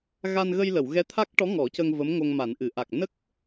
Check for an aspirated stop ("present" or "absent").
present